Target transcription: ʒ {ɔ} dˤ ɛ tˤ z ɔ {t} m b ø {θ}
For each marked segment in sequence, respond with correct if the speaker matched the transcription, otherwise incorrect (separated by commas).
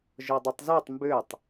correct, incorrect, incorrect